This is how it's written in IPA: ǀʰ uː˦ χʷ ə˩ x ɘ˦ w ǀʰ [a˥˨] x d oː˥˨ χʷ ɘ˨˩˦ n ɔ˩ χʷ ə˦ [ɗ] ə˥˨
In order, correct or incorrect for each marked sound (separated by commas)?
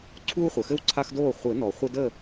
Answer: incorrect, incorrect